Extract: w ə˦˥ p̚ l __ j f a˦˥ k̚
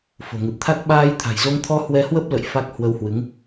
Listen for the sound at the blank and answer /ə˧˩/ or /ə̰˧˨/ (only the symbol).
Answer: ə̰˧˨